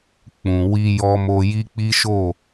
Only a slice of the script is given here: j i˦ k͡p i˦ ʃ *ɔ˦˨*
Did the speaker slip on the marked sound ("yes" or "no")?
yes